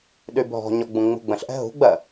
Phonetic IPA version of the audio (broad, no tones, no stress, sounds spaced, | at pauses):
ɗ y bʱ ɔ̤ ɲ ɔ ɡ͡b ũ ŋ͡m ṳ ɡ͡b ə̃ ɬ ʔ ɛ̤ ɦ ṳ ɡ͡b ɜ